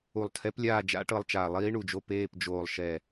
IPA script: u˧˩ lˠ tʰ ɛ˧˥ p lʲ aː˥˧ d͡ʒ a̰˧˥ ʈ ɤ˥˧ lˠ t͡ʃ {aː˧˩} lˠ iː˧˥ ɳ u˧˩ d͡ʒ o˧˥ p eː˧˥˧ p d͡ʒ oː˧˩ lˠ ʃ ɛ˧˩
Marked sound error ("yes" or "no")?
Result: no